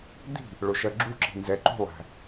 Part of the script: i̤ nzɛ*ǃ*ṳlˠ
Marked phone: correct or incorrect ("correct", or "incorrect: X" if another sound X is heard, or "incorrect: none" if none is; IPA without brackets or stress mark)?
correct